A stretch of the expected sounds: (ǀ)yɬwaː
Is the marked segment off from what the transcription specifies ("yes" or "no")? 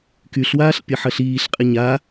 yes